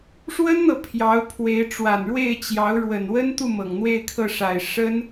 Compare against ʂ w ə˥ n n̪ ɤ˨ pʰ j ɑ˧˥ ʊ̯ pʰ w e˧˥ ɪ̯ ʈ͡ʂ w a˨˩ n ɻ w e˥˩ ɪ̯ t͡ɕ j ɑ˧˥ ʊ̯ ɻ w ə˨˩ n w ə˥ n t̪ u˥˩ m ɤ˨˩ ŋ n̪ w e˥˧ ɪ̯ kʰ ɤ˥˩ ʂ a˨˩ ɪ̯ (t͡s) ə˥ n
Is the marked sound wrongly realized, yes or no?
yes